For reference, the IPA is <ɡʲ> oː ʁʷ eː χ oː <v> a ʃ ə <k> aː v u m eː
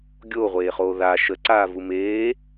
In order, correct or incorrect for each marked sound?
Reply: correct, incorrect, incorrect

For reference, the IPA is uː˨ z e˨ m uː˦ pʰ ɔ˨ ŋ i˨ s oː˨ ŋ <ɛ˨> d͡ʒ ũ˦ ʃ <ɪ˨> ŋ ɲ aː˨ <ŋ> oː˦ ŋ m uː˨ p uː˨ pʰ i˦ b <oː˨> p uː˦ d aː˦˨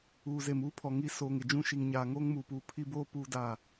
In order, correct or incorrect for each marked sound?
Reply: incorrect, incorrect, correct, incorrect

